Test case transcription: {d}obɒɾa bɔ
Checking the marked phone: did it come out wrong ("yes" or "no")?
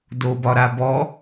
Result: no